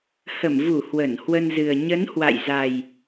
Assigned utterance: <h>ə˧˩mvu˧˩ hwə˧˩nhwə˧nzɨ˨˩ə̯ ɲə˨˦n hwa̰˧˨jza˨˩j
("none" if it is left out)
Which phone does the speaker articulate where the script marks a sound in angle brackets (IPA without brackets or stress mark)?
h